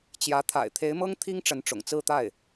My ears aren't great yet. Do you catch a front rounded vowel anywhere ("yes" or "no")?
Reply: no